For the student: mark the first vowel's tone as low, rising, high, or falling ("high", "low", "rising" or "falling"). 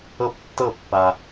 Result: falling